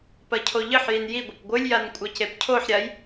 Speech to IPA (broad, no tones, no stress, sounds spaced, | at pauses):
p ɐ cʰ o ʎ ɨ ħ j i n j i ɡʷ ɐ p ɡʷ ɨ lʲ j a n kʷʼ ɐ c e p cʰ o ħ ɾʲ a j